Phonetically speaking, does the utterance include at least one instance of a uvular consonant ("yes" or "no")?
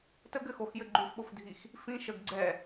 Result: no